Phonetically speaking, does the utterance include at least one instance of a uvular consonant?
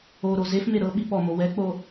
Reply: no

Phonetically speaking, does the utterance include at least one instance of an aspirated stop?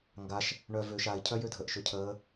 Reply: yes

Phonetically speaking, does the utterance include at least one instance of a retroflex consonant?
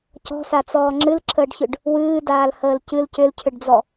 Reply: yes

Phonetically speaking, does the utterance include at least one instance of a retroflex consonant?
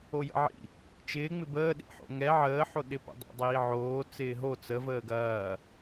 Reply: no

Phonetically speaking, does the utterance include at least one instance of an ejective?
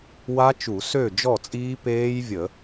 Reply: yes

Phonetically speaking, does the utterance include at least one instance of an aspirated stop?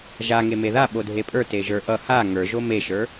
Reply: no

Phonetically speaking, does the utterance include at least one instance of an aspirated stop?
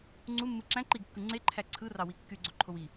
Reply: yes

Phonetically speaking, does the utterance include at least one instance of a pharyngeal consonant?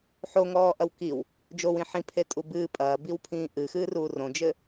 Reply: yes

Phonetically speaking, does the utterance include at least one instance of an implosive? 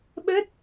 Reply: yes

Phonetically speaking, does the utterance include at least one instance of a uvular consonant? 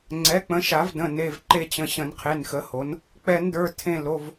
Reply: yes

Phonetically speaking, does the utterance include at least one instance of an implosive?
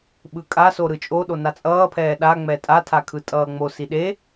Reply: yes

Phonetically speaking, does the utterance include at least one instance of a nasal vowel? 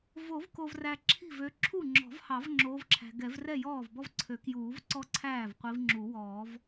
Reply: no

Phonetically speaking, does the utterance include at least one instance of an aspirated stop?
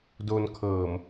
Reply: yes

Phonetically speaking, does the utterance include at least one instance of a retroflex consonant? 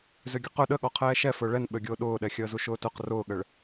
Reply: yes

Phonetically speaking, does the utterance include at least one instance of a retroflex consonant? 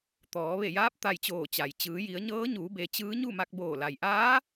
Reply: no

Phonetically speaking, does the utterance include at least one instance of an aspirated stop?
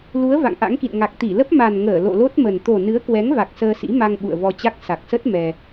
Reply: no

